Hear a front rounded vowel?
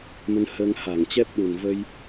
no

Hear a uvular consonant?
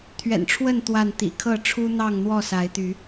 no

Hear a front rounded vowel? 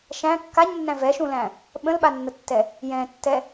no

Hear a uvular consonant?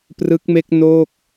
no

